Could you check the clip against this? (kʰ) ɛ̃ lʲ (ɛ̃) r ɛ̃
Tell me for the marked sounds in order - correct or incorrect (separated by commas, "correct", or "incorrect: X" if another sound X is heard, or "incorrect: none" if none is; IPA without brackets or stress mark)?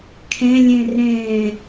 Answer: correct, correct